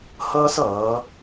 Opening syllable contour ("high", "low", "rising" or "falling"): high